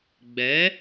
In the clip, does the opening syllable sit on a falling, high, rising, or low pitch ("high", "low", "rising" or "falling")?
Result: rising